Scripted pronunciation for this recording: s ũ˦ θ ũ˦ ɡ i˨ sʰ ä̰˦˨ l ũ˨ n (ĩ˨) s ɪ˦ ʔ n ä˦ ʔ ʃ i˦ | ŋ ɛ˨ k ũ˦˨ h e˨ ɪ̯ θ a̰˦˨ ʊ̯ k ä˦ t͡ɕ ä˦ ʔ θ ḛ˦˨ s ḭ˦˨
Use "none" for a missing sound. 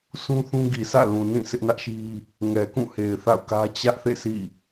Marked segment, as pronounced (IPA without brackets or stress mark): ĩ˦˨